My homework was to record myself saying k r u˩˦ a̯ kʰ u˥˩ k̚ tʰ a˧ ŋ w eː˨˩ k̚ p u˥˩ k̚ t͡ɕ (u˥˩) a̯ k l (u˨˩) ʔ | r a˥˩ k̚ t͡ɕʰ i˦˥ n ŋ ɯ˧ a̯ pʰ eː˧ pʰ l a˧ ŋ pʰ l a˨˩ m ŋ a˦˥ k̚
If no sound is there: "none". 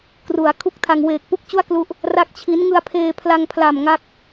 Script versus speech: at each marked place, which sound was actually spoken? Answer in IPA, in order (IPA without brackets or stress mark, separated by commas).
u˥˩, u˦˥